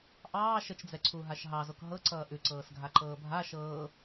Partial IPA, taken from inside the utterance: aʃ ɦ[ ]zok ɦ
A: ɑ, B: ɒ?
A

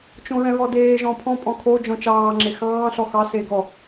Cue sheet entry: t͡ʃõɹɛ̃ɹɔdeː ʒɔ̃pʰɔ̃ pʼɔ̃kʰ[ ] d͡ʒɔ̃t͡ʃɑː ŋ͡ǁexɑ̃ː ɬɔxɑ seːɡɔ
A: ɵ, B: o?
B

